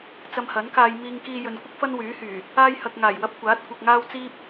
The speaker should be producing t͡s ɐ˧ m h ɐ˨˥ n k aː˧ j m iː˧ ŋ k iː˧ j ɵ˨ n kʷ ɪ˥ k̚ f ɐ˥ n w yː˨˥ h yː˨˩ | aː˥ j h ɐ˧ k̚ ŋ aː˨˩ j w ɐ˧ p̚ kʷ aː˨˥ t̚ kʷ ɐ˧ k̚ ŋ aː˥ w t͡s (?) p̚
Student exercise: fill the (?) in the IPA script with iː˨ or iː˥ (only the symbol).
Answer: iː˥